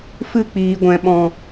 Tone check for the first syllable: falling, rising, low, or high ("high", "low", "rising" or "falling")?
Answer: falling